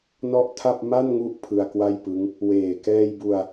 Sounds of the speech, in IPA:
nɔ˥˩ʔtʰa˥˩p̚ ma˥˩nŋu˦˥ʔ pʰɯ˧a̯kwa˥˩jpɯ˦˥ŋ | weː˨˩kɛː˧jbu˧a̯

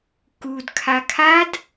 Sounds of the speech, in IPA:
kudkʰa kʰad

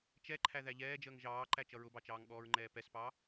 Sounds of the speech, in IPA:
t͡ʃɛǃʰæ ðæʎɛːd͡ʒəːŋ ʒɑːǃæ t͡ʃʌɹʊbɑt͡ʃɑːŋ ɠɔːɹŋ͡ǃɛːpɛspɑ

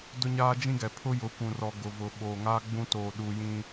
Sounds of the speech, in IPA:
dʊ˦ɲaː˦d͡ʒĩ˦ɡɛ˨ pʰʊ˦jʊ˨˦kʷũ˨rɔ˨ ɡʊ˨vʊ˨ ɓoː˨ŋaː˦ ɡ͡bũ˦toː˨ɗuː˨jĩ˦

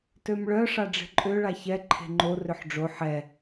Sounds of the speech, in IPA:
tømɭœ ʂaɖ͡ʐe̤ǃʼø ɭaçɛ ǃʰe̤ŋ͡ǃo rʏħɖ͡ʐo ħɛ

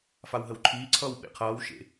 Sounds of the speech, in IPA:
fawɦəwǃʰiːǀʰʌːw ɓḛqʰʌːwʃḛ

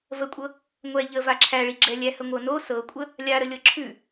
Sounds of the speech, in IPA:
vəkʷʼɤ | ŋʷɛ ʎə vaǁʰæɭi ɡ͡ǁɛlʲæhə ŋʷɤno sɤkʷʼə | lʲaɾə lʲɤǁʰʉ

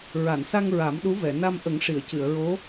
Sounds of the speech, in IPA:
ɹa˨˩˨nsa˧ŋ ɹa˨˩˦mɗu˧˥vɛ˨˩˨ na˧mʔə˨˩˦ŋ ʂi˨˩˨ə̯cɨ˨˩˨ə̯ɹo˧˥

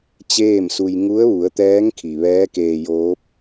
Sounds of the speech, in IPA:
t͡ɕeː˥˨msu˧j ŋu˧˥ə̯ʋu˩˧ə̯t̪ɛː˧˥ŋ kʰi˩ʋɛː˧˥keː˧joː˧˥p̚

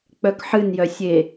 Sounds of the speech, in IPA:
k͡pœkħɨnjœ sʲe

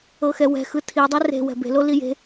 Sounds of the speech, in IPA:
ɤxɛwɛ̤xɯ tʰidˤɛ re̤ wɛ̤be̤lo lije̤

